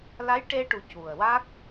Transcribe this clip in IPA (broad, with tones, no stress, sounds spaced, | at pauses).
l a˧˥ j ʈ e˧ ʈ u˨˩ c u˨˩ ə̯ w a˦˥ k̚